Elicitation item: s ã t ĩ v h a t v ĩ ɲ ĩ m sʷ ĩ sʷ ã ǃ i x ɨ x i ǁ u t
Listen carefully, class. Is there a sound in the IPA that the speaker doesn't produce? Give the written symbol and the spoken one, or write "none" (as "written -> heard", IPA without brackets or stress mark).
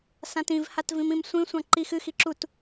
ɲ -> m